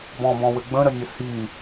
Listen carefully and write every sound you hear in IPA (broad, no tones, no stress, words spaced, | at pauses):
bɔ̃bɔ̃wɘ ɡ͡bə̃ɾənʲə hi